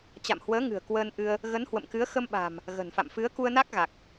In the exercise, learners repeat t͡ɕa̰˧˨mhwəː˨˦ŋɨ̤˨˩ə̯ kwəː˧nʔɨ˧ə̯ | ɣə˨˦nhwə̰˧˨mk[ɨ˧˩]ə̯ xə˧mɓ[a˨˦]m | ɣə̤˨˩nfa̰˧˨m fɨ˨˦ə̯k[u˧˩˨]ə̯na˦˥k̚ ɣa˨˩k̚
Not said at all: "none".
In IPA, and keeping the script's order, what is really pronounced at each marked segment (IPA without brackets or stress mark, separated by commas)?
ɨ˨˦, a̤˨˩, u˧